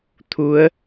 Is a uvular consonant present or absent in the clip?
absent